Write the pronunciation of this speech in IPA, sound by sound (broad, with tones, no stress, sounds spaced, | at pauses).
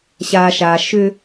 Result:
ɕ a˨ ʃ a˨ ʃ ʏ˦